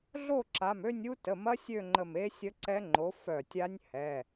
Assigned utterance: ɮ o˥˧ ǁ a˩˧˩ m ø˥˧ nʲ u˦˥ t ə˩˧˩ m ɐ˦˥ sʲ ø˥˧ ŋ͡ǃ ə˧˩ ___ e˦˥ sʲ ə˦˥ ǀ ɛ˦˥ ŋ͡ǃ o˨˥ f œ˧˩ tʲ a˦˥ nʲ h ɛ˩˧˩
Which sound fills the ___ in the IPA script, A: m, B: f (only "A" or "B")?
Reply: A